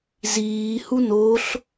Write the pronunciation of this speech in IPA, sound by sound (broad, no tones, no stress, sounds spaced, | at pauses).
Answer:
z iː h u n o ɬ